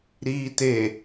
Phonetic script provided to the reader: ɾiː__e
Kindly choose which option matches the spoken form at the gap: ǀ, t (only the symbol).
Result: t